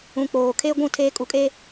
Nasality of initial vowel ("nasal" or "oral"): nasal